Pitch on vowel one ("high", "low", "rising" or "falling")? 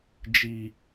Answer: low